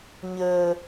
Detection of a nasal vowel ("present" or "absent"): absent